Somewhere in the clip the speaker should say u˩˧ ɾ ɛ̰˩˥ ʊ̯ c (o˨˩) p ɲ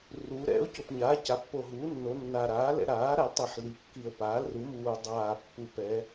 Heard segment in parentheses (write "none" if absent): o˨˩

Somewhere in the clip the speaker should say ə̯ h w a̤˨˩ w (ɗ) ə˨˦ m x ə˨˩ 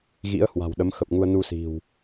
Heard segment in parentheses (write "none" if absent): ɗ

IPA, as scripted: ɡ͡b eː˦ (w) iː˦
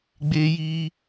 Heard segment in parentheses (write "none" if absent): j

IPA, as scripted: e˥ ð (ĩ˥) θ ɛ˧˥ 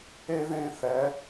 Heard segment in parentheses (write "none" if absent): ẽ˥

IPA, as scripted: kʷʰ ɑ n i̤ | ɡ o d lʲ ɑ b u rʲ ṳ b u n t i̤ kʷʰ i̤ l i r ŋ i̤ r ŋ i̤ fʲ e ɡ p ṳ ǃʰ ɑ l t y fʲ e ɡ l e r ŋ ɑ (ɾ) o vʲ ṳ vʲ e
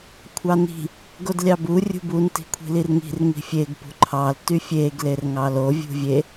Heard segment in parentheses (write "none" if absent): l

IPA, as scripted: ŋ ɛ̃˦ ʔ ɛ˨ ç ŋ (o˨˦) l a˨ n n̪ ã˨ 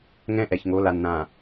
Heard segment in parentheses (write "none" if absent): o˨˦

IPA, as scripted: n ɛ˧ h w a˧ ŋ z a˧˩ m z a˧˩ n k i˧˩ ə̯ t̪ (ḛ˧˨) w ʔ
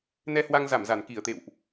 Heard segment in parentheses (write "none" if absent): ḛ˧˨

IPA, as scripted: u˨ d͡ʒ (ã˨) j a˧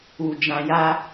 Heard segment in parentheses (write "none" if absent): ã˨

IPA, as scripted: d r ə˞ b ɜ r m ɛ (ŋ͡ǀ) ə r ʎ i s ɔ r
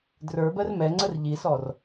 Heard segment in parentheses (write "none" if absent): ŋ͡ǀ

